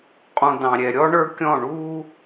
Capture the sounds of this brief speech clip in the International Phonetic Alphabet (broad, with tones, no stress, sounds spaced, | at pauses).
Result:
qʼ ũ˨ d ɑ̃˨ ɾʲ ɛ˨ ɾʲ ɔ˦ ɳ ə˞˦ kʲ ɔ̃˦˨ ɳ uː˦